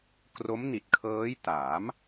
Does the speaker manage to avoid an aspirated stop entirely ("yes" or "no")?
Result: no